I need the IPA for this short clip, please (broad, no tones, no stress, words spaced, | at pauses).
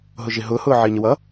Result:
ɦʊʒɪ ɦʊːhʊː ʕɪːɲəwʌ